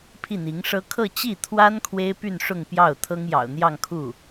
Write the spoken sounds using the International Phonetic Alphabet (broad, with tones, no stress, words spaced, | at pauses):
pʰi˥˩n̪i˧˥ŋʂɤ˥ kʰɤ˥˧t͡ɕi˥˩ t̪ʰwa˥n kʰwe˥ɪ̯py˥˧n ʂʊ˥˧ŋpjɑ˥˩ʊ̯t̪ʰɤ˥ŋ jɑ̰˨˩ʊ̯n̪jɑ˥˧ŋkʰu˥˩